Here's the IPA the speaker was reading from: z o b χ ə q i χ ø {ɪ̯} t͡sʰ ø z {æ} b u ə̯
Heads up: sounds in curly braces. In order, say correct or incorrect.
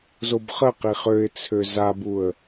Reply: correct, incorrect

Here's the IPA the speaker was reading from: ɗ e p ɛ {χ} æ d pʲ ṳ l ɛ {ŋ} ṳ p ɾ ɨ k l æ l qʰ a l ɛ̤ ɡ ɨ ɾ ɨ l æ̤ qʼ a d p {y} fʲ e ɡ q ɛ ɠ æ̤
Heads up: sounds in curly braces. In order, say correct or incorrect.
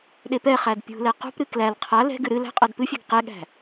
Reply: correct, incorrect, incorrect

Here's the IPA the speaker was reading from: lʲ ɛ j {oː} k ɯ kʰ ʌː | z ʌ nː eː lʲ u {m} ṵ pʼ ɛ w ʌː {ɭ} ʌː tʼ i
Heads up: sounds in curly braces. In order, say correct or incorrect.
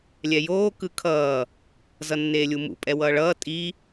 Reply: correct, correct, correct

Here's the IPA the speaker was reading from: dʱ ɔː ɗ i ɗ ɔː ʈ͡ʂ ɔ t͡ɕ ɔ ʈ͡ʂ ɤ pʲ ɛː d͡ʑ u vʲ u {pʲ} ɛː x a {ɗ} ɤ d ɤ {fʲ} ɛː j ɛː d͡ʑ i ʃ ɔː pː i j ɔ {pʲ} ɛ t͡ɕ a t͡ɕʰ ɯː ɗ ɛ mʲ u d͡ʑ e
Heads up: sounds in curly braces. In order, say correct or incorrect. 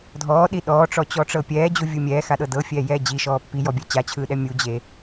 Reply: incorrect, correct, correct, incorrect

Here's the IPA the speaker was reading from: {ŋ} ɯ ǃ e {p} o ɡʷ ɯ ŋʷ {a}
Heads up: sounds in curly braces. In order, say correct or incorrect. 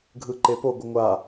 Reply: incorrect, correct, correct

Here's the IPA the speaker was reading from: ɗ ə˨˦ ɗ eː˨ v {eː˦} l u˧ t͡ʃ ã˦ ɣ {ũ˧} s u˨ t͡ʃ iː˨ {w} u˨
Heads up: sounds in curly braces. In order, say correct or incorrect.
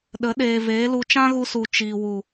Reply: incorrect, incorrect, correct

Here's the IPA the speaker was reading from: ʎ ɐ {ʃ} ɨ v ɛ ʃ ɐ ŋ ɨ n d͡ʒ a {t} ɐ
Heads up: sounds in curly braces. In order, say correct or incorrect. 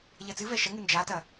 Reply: incorrect, correct

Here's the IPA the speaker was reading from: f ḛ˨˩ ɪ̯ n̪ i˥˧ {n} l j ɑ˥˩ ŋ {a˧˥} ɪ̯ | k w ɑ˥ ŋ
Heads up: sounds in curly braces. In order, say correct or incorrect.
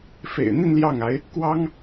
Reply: correct, correct

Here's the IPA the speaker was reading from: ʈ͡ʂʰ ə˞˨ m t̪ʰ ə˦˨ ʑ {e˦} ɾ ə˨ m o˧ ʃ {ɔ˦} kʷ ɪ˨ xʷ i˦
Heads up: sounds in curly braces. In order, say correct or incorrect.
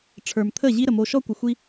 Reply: incorrect, correct

